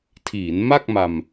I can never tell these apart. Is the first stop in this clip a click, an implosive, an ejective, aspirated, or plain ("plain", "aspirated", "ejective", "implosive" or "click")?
aspirated